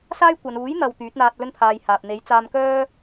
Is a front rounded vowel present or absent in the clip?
present